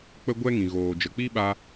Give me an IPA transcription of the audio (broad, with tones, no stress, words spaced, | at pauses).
k͡pə˦ɡʷɛ˦ŋĩ˨ ɣoː˨d͡ʒə˨k͡pi˦ɓa˧